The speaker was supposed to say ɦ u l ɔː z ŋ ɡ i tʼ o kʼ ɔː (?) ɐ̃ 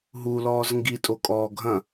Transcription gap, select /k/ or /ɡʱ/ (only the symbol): ɡʱ